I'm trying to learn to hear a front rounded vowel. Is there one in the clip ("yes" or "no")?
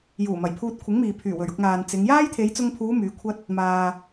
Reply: yes